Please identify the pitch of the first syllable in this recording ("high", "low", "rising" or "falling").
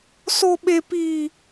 high